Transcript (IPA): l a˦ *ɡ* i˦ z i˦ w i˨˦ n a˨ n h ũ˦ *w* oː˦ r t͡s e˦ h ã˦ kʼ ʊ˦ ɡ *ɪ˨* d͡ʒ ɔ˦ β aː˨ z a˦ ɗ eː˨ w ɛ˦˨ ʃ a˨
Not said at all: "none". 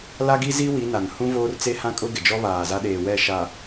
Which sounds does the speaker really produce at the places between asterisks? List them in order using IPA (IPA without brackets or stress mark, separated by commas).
ɡ, v, ɪ˨